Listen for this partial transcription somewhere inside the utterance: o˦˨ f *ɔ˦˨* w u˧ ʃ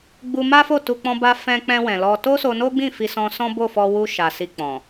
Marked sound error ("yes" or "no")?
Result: yes